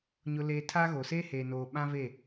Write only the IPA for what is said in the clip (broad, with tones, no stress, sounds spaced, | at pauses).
ɲ ʊ˦ l eː˦ tʰ a˦ ɣ o˨ s eː˦ h eː˨ n oː˨ ɓ ã˦ v e˦˨